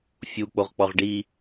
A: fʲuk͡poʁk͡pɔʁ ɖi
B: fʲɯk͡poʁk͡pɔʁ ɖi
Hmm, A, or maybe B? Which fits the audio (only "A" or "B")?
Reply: A